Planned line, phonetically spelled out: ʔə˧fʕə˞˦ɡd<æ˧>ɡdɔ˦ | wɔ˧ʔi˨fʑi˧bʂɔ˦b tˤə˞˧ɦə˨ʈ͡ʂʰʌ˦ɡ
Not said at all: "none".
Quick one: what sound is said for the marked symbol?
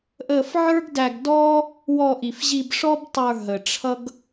æ˧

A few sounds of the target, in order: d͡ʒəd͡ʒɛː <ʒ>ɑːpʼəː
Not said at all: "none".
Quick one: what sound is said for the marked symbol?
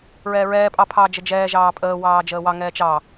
ʒ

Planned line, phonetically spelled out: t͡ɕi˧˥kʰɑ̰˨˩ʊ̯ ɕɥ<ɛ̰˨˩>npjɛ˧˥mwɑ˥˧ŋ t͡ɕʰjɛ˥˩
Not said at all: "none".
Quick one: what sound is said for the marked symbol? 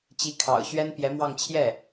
ɛ˥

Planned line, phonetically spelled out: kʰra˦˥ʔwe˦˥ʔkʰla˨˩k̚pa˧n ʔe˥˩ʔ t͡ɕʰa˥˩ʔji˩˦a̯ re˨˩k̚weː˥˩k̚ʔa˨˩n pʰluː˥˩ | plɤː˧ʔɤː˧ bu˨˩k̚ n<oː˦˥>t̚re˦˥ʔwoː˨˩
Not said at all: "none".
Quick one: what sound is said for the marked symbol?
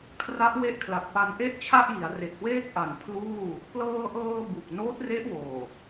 oː˦˥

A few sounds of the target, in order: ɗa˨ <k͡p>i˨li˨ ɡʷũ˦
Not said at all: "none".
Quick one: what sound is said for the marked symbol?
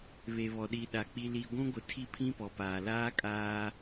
k͡p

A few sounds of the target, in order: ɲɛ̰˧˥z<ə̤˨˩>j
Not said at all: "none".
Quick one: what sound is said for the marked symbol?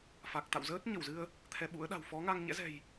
ɛ̤˨˩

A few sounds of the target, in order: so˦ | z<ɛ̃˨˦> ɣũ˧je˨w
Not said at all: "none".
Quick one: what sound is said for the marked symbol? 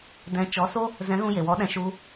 ɛ̃˨˦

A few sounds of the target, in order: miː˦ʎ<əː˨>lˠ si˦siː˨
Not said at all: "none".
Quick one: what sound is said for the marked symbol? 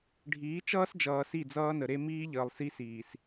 əː˨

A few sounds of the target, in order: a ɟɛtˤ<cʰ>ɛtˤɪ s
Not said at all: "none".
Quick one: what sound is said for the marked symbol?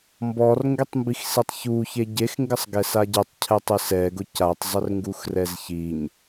cʰ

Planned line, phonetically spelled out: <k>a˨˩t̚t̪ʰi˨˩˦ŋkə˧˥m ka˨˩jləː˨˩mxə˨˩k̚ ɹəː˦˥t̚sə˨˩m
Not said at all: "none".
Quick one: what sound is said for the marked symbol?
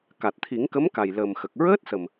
k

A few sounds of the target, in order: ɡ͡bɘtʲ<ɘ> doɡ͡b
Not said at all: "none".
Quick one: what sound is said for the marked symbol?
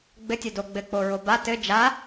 ɘ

